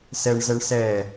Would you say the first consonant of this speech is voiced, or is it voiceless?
voiceless